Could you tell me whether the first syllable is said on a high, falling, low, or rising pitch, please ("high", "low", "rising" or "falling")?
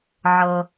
low